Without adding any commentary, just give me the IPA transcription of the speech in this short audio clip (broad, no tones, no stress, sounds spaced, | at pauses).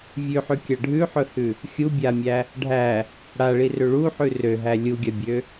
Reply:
vʲ ʉ ħ ʉ kʲ a ɖʱ ʉ ħ ɵ h ʉ | xʲ u bʲ a mʲ æ | ɖʱ æ | ɽ a ɭ i r ø ɭ u ħ ʉ r ø ɦ æ lʲ u ɡʲ a bʲ ø